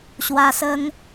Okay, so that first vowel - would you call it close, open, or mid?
open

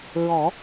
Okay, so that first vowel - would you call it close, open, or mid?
mid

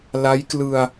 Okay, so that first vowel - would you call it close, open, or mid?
open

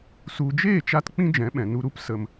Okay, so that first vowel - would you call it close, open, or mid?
close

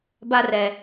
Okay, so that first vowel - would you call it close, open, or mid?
open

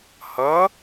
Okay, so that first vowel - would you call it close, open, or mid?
mid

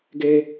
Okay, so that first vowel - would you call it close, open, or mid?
mid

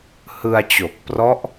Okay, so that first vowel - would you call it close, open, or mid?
close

